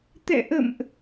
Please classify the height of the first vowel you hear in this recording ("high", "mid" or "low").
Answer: mid